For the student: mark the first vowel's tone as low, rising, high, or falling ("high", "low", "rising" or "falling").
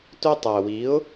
high